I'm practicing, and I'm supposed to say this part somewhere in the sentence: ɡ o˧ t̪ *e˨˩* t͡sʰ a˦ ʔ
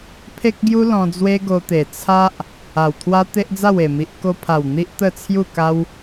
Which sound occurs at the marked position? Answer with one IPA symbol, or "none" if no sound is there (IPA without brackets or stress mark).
e˨˩